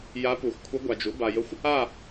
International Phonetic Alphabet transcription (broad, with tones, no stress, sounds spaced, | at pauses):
j a˧˥ p u˨ x kʷʰ ə˧˥ ɡʷ a˨ d͡ʒ u˩˥ b a˨ j ə˧˥ xʷ | a˥˨